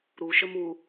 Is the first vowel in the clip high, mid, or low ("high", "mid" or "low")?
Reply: high